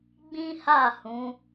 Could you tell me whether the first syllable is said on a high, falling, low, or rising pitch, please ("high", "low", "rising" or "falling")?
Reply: high